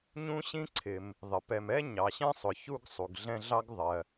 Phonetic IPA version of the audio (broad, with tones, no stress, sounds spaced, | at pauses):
ɲ ũ˦ ɕ ĩ˦ ǀʰ ɪ˩ m | ðˤ ɪ˩ p ɛ˨ m ɛ˥ ɲ ɑ˩ ɕ ɛ̃˥ sˤ ʊ˩ ç u˦ ɡ sˤ u˩ ɡ ɮ ɛ̃˦ ɮ ɑ˥ ɡ ðˤ ɜ˩